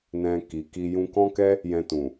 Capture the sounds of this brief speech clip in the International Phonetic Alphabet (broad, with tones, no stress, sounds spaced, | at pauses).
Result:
n ɛ̃˧ k i˨ k i˧ j ũ˧ k ɔ̃˦ k ɛ˦ | j ɛ̃˧ t ũ˨